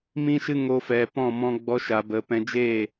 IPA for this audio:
mĩ˦ʃɨ˦ŋo˧ fɛ˨pɔ̃˦˨ mɔ̃˧ ɡ͡bɔ˧ʃa˨bə˨ pɛ̃˧d͡ʒeː˦˨

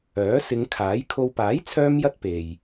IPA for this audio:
œː˨˥sɪ˨˧ŋ kʰaː˨˥jkʰo˧w paː˨˥jt͡sʰœː˧mjɐ˧t̚ pe˨j

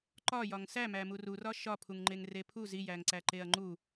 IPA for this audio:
ǃɒ jɒŋsæ mæmururɒ ʃɒpʰuŋŋ͡ǃeŋ repʰuz ijæŋǀæ ǃeɐ̯ŋ͡ǃu

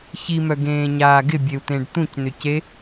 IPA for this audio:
çimœɡẽːɲaː ɡɪbʲeu̯t̪ẽɖ t̪ũcnʏce

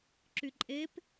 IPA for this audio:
ǁyǃʼep

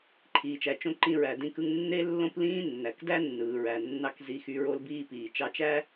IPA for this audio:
ǃʰiː˩t͡ʃæ˩t͡ʃõ˧ ǃĩ˧ɹæ˩dĩ˧kɯ˧ŋ nːe˥lːõ˥plĩː˥nːæ˩k dæ˥nːɯː˩ɹæ˩ nːɑ˧k zi˧xy˧ ɹo˧lbiː˧piː˩ t͡ʃɑ˧t͡ʃæ˥

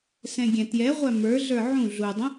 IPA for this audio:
sɛ̃ɡʲɛ̃tjɛʁʷæ mə˞ɮə˞ ʕũ ɮudˤə̃

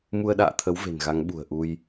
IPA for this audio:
mu˧ə̯ɗa̰ː˧˨t̪ʰə˨˦w ve̤˨˩nɣa˨˦ŋɓṳ˨˩ə̯ ʔu˧j

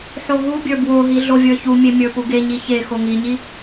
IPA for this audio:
ħoɦubʲə˞ bwoɦi ɮovʲə˞çumʲe mʲə˞puɡeɲi çe xoŋiɲi

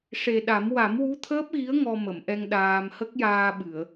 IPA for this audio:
ʂe˨˩ɗa˨˩˦m wa˨˩˦mwu˧˥t̪ʰəː˦˥p̚ɣi˧˥ə̯ ŋɔ˧mə˨˩˨mʔɛ˧ŋ ɗaː˧m hə˦˥k̚jaː˧ɓɨ˨˩˨ə̯

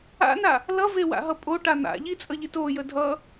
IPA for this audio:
a̰na | lʌvewa̰ɦʌ pʼoʈa n̪a̰ʎit͡sʼʌʎit ojə dʱʌ

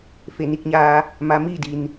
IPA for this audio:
fe˧˩ni˥˨k̚ɲaː˧ | ma˧˥ miː˥˨di˩n

